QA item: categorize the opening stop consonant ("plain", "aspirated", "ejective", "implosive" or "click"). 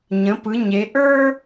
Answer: plain